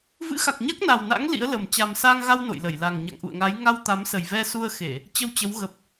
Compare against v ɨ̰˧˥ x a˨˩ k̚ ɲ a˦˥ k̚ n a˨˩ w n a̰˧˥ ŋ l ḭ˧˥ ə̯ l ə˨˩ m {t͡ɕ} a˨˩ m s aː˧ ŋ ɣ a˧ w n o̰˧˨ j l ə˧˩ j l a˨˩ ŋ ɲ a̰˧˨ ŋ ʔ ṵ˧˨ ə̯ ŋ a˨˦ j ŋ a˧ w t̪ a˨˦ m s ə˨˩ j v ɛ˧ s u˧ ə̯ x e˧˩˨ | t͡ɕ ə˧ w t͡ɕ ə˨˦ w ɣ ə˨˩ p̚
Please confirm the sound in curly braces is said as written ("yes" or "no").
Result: yes